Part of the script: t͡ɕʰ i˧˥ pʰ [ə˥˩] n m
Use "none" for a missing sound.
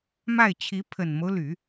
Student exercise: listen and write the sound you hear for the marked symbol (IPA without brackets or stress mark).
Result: ə˨˩